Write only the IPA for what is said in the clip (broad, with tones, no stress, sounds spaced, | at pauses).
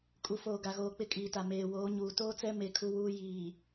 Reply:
kʼ u˨ f oː˨ ɡ a˨ ɣ oː˨ k͡p ɪ˦˨ kʼ iː˨ t a˨ m eː˨ w oː˨˦ ɲ uː˨ t oː˦ t͡s ɛ˦ m e˦˨ kʰ u˦ w uː˦ j iː˨